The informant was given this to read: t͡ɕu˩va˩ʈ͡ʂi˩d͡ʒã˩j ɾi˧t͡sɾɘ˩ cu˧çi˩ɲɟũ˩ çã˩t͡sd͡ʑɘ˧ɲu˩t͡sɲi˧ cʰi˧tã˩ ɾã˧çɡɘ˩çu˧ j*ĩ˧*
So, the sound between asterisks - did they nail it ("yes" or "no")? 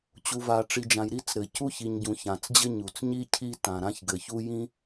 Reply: yes